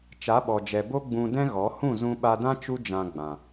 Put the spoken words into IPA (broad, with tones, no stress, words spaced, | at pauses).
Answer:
t͡ʃa˨˦ɓɔ˨d͡ʒɛ˨ bo˦ ɡ͡bũ˧dɛ̃˦ɣɔ˨˦ hũ˦˨zũ˧ɓa˧dã˦ t͡ʃu˦d͡ʒã˧ɡ͡bã˨